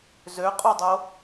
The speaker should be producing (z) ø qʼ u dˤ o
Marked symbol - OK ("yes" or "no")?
yes